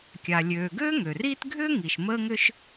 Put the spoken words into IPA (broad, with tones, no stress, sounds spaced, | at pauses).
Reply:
kʲ a˩ lʲ øː˩ ɡ ø˥ ŋ ø˩ r iː˥ t ɡʱ ʏː˥ ŋ i˩ ʃ m əː˥ ŋ ʏ˥ ʃ